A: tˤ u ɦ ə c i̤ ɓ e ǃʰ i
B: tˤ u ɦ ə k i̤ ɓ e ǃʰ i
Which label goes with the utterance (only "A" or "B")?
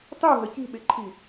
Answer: A